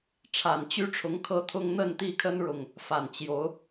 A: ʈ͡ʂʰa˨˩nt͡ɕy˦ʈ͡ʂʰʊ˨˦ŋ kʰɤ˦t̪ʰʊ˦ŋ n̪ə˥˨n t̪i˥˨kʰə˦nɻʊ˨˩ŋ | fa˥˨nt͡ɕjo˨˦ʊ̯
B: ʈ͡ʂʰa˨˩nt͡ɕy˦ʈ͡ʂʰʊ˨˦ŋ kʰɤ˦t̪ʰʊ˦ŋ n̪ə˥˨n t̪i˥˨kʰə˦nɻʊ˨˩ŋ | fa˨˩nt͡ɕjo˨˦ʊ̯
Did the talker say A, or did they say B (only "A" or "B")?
B